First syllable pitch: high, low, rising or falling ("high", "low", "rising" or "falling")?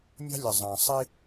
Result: high